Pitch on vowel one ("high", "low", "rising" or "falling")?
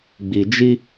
low